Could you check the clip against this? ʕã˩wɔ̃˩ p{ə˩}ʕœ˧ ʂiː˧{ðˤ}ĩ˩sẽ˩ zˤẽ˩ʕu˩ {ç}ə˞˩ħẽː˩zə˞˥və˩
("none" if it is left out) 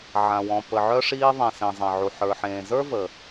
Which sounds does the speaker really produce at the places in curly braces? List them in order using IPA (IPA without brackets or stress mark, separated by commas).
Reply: ə˩, ðˤ, ħ